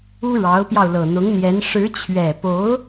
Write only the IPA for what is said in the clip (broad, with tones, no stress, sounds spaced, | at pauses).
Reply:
u˥ ɻ ɑ˧˥ ʊ̯ p j ɑ˧ ʊ̯ l ɤ˨˩ n̪ ʊ˧˥ ŋ n̪ j ɛ˧˥ n ʂ ɻ̩˧˥ t͡ɕʰ ɥ ɛ˨˩ p o˧˥ ʊ̯